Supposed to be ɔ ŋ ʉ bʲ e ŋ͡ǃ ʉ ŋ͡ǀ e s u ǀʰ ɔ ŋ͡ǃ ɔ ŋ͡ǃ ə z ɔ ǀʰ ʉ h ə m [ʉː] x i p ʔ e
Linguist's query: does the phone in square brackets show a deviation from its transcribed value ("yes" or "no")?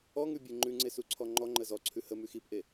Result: yes